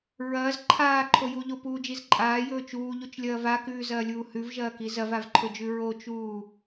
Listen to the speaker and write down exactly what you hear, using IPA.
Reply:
ɹɐːz ǃʰaːǃʰo juʎopuːd͡ʒiz ǃʼaːjɵː t͡ʃuːʎut͡ʃlʲɐː vakʉːzɐːlʲuː hʉvʒɐːki zɐvavǃʰɵd͡ʒʉ ɹot͡ʃuː

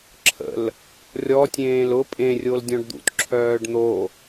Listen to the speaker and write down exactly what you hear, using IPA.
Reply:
ǁʰə̰l | rʲɔtʲẽːl ʊ pʼẽrʲol dʲɔ̃ɖd̪ṵtǁʰœːɖ n̪o

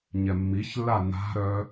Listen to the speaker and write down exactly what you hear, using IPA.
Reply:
ɲɛmːiçlːa na̤ɾœ

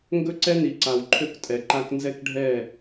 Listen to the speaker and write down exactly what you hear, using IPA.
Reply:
ŋɡɵ˦ǀɛ˦ ni˨ǀa˨wǃʰø˦k tʼɛ˨ǃa˦k nzɛ˦kɖʱɛ˦˨

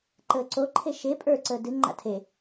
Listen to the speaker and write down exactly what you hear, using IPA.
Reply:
ǃəːǀoǃʰe ʃe pʼə˞ǀəː dɨŋ͡ǃa̰ tʰe

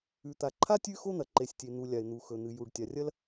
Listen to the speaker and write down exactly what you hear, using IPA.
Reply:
ʉ˩t̪a˩ǃʰa˥ tʲʉ˥ xo˥n̪ɐ˩ ǃe˩sʲtʲe˩n̪u˩ lʲa˩ɪ̯n̪u˩xɵ˩n̪ɨ˩ ju˩ɖtʲa˩rʲɐ˥l

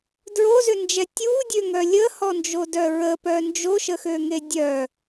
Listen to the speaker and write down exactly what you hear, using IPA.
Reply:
dɹozʏnd͡ʒɛ tʲudʲøŋœ lʲəhɔnd͡ʒodœ ɹəpœ nd͡ʒoʃəxøŋe dʲœ

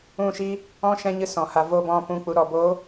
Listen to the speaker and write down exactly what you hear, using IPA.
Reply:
ũ˦˨ʃi˦ | ɔ̃˦ʃɛ̃˧ɲɨ˧ sɔ̃˨ ha˨vo˧ bɔ̃˨ pũ˨k͡pu˨ ɾɔ˨bo˨˦

